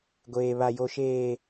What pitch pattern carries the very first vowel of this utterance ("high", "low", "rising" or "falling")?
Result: low